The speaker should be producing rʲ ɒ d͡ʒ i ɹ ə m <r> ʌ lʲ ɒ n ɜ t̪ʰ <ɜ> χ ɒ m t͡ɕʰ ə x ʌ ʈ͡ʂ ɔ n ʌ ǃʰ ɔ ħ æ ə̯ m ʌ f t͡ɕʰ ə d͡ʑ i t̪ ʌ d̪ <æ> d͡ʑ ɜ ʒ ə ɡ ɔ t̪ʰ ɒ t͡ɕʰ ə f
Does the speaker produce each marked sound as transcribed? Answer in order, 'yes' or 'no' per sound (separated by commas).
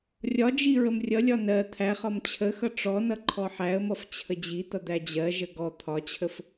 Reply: no, no, yes